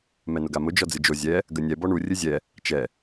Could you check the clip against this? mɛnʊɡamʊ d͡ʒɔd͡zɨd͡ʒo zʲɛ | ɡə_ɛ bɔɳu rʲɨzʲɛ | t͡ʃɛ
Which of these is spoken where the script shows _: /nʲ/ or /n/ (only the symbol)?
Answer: nʲ